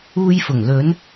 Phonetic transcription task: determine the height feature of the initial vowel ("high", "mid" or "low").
high